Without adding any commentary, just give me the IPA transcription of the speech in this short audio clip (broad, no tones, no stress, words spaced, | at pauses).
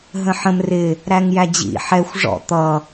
ɦə̃ħə̃m rɪ | ɾæŋjæd͡ʑḭ ħɛxʷ ʐɔ̰ t̪ʌ